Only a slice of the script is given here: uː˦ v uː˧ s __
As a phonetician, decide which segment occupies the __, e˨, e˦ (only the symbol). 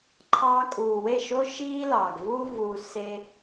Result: e˦